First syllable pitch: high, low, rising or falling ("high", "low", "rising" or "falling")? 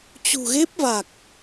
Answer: low